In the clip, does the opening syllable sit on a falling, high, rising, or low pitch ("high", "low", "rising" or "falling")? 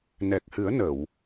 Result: low